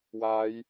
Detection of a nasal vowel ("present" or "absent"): absent